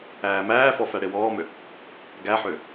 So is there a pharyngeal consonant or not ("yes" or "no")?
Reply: yes